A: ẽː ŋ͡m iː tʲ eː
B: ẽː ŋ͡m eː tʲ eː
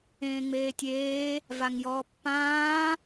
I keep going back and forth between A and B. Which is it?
B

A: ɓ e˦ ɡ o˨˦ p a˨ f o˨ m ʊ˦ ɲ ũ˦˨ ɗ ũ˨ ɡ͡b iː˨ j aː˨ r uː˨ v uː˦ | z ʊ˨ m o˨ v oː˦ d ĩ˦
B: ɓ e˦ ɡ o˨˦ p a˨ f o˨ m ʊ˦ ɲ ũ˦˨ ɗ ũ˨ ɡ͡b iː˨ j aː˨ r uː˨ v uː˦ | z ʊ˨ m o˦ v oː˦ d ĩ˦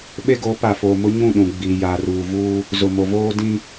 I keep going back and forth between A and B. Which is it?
A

